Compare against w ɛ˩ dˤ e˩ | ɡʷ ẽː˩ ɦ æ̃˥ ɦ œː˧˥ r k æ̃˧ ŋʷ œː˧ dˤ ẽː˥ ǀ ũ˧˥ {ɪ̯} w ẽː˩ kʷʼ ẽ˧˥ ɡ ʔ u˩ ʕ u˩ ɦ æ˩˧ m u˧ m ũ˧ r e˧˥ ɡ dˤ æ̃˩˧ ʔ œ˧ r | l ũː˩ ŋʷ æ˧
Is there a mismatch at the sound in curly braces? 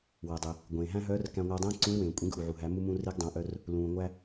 no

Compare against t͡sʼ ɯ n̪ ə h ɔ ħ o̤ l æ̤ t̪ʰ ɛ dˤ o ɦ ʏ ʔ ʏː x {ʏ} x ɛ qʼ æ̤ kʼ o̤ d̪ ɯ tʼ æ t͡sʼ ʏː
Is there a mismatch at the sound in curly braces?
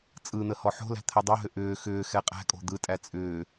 yes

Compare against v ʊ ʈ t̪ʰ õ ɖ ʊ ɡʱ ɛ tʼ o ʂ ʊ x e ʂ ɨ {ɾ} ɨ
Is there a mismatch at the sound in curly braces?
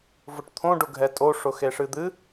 yes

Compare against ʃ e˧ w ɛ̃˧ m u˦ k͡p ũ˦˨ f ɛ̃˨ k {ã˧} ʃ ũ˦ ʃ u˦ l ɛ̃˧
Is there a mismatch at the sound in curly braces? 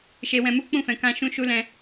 no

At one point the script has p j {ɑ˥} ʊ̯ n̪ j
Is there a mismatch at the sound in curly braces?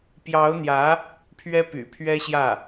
yes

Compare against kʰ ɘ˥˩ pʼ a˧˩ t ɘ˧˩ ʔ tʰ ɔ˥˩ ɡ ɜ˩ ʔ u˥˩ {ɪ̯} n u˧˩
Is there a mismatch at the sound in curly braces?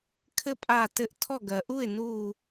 no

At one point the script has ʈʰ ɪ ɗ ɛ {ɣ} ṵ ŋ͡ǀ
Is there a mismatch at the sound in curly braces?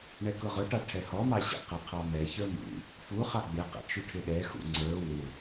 yes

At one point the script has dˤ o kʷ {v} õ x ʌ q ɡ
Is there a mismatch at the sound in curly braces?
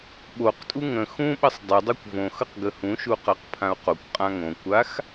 no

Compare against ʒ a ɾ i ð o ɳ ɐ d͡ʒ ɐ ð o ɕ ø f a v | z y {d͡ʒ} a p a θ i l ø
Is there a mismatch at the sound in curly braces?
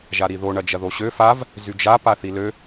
no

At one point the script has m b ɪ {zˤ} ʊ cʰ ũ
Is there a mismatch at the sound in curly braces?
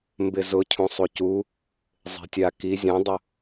yes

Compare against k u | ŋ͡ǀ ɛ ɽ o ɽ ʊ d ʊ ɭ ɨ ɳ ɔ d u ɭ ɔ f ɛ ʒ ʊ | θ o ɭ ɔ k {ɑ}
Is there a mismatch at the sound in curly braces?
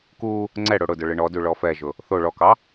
no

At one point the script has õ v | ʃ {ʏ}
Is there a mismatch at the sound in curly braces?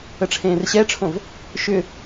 no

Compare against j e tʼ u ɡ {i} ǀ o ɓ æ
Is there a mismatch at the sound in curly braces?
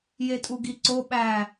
no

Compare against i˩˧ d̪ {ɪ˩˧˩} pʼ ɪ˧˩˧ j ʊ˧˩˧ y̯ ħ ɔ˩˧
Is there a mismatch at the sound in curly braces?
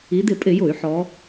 yes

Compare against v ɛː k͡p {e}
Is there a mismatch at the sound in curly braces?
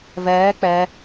yes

